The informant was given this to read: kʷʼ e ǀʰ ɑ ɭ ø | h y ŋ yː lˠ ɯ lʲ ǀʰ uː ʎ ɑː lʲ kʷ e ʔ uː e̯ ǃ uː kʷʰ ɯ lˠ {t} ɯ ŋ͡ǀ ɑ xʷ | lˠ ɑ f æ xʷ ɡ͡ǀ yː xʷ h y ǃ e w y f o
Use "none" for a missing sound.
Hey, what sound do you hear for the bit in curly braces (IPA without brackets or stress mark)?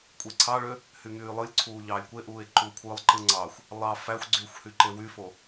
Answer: ǃ